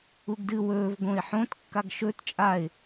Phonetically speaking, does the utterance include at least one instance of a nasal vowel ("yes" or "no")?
yes